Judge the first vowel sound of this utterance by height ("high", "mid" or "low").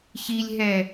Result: high